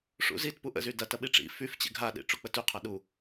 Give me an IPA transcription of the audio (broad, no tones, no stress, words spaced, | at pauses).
ʂṵzitpu ʔə̰zy dɐ tɐɓiʈ͡ʂḭ fyf t͡ɕḛɡʱaɗḭ ʈ͡ʂuk͡pətyqʰa ɗu